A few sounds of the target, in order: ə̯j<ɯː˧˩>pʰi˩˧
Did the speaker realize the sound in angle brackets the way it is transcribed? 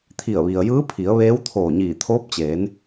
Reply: no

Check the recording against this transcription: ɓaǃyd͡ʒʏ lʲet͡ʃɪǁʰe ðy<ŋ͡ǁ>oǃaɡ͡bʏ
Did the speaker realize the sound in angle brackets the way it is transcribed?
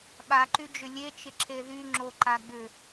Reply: yes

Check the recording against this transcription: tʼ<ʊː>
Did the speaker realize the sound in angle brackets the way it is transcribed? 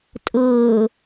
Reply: yes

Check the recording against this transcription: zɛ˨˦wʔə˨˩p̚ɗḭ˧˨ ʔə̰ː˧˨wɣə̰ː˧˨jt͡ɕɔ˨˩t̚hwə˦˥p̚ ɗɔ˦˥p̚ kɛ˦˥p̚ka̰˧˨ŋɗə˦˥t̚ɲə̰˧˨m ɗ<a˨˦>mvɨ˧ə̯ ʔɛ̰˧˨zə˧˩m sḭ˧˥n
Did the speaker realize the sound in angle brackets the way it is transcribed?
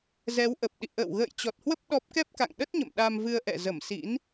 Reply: no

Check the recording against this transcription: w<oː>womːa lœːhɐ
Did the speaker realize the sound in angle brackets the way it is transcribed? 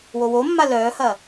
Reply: no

